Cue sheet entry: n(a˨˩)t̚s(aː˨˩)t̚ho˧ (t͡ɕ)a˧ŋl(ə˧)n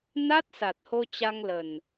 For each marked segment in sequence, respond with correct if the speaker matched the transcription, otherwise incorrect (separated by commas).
incorrect, incorrect, correct, incorrect